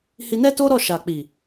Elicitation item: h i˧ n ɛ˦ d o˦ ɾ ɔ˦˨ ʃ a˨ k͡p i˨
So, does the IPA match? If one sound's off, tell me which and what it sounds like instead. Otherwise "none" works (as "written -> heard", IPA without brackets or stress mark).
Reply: d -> t